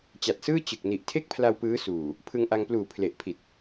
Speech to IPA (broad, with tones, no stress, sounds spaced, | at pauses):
t͡ɕ a˨˩ t̚ s ɯː˥˩ t͡ɕ ɯ˨˩ k̚ n i˨˩ ʔ tʰ e˥˩ k̚ pʰ l a˧ w p ɯː˦˥ s uː˨˩ | pʰ ɯ˧ ŋ ʔ a˧ ŋ p l uː˨˩ pʰ l e˨˩ ʔ pʰ i˨˩ t̚